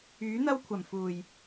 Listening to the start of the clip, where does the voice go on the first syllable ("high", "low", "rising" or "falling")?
rising